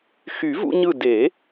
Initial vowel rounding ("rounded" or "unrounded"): rounded